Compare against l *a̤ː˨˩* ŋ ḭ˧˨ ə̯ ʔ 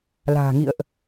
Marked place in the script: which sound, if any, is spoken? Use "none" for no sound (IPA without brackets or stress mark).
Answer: a̤ː˨˩